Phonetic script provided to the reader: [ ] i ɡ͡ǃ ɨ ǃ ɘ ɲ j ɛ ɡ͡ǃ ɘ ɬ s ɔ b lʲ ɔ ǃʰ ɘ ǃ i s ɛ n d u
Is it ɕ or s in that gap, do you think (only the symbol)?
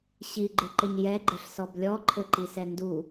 ɕ